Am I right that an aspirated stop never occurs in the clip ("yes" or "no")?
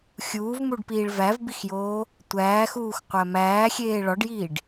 yes